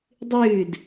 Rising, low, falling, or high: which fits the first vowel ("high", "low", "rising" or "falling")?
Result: falling